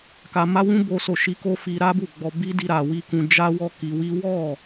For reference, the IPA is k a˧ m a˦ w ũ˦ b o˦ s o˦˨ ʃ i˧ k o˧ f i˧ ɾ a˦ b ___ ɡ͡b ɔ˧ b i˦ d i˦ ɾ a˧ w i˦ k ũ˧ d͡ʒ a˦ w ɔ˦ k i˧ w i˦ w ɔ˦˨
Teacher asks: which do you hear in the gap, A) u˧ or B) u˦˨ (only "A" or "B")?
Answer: B